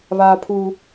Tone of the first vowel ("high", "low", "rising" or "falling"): high